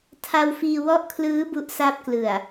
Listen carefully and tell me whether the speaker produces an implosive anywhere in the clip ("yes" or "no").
no